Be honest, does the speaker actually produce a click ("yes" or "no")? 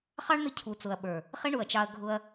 no